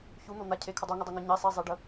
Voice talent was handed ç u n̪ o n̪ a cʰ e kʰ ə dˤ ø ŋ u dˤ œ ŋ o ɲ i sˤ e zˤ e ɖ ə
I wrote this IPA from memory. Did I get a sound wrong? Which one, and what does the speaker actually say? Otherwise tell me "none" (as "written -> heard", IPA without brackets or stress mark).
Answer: ø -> u